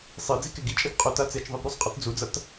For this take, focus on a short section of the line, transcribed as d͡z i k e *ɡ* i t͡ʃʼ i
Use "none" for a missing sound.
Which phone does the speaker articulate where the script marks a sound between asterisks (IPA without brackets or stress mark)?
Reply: ɡ